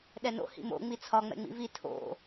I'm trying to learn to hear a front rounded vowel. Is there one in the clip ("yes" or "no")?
no